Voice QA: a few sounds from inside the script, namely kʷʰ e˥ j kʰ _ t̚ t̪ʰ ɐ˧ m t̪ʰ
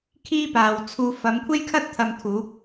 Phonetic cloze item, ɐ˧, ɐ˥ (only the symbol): ɐ˥